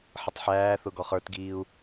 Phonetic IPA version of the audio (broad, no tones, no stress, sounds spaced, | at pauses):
ħ i tˤ ħ æː θ ʊ ɡ ɔ χ ə˞ t ɡ iː u̯